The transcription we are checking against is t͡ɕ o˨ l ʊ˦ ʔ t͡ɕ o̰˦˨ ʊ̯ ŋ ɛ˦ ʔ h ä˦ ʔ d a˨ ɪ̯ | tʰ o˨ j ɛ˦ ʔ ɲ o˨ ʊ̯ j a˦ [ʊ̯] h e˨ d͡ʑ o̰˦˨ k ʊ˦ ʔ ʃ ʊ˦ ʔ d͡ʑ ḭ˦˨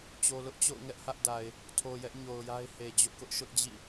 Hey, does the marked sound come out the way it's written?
no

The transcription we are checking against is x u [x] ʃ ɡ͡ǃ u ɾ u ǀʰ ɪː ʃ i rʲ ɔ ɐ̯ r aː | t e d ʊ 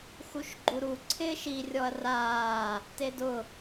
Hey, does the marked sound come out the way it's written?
no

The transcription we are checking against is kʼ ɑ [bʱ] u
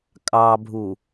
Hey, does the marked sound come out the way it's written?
yes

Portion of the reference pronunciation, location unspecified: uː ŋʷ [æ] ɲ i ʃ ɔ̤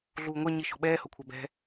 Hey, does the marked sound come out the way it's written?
no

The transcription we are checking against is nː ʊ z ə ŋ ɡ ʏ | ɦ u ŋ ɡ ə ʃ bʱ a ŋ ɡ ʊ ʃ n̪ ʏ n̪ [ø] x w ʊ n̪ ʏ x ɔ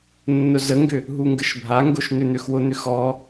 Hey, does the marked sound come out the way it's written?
yes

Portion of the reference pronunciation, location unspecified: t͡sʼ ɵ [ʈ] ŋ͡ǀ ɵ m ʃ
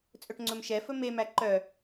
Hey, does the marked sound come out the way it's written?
yes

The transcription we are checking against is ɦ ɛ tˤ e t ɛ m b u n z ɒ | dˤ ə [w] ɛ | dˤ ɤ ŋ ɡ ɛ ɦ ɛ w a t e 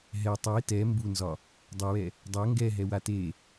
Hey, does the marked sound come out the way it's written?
yes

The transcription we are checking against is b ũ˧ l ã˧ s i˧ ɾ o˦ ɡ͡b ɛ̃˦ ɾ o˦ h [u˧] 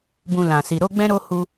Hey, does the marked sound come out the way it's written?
yes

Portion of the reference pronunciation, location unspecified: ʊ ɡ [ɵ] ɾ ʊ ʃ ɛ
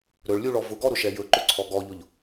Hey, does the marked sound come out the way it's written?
no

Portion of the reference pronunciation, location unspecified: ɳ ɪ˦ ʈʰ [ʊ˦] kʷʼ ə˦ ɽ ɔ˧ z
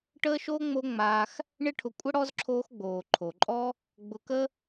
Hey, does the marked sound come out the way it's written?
no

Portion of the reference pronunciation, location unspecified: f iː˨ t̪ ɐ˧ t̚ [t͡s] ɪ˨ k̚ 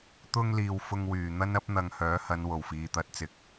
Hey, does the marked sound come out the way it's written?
yes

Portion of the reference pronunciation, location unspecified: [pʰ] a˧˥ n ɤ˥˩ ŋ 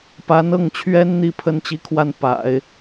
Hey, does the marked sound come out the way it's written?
no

